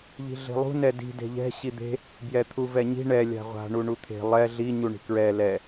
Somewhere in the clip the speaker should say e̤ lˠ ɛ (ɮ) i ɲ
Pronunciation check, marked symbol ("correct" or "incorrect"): correct